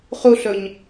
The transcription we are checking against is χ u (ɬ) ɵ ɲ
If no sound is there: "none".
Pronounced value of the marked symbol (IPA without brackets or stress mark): ɬ